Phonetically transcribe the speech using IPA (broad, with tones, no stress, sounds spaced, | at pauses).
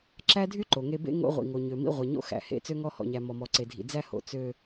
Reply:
ǁ æ˦ dʱ y˦ ǃ o˨ ŋ e˦ b ḛ˦ ŋ o̰˦ ʁʷ ḭ˨ ŋ o˨ ɲ ø˨ m ḭ˦ ʁʷ e˨ ɲ o̰˦ x æ̰˨ h ḛ˦ t͡s ø˦ ŋ ɔ˦ h ɔ̰˨ ɲ æ˨ m ɔ˨ m ɔ˨ ǀ e˨ dʱ ḭ˨ d͡z æ˦ h o̰˨ t͡s ø˨